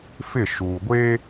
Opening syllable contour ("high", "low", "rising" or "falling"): falling